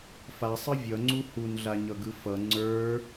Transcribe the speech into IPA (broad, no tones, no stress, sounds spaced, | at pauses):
f a sˤ ɯ vʲ ʌ ŋ͡ǀ u h u n ɮ a ɲ ʌ ɡ ɯ f ʌ ŋ͡ǀ ə˞